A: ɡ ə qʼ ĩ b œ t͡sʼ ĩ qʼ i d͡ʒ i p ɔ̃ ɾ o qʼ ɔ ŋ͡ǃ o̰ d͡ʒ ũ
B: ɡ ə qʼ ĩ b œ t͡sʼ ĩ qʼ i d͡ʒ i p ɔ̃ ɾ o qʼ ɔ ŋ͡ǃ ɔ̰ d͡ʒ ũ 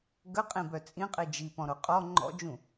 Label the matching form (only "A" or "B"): B